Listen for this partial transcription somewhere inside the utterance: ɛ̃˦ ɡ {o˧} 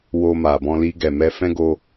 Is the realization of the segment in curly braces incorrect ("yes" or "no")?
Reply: no